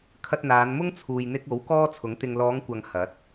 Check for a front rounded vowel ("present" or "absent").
absent